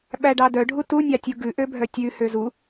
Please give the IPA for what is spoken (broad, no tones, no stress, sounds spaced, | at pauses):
ɓ æ ɖ ɑ d œ ɖʱ u t u nʲ ɑ tʲ u ɡ ʉ ʔ ø bʱ œ tʲ ʉ h ø z u